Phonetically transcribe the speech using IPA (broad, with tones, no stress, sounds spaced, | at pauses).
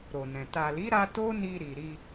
ɾ o˨ n ɛ̃˨ t a˨ l i˨˦ ɾ a˧ t o˦ n i˧ ɾ i˨ ɾ i˧